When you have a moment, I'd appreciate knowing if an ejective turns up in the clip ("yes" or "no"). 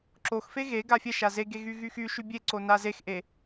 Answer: no